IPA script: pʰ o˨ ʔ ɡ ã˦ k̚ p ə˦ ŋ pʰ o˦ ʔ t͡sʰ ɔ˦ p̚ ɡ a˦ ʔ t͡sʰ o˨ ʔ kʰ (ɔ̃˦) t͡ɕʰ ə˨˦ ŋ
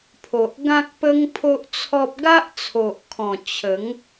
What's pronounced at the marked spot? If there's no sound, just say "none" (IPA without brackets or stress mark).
ɔ̃˨˩